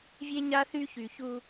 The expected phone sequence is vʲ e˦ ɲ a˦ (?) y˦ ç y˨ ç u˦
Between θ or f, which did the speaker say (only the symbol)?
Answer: θ